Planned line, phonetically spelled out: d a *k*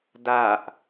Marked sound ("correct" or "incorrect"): incorrect